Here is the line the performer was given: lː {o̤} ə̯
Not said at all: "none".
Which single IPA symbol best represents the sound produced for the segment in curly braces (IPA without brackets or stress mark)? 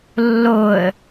o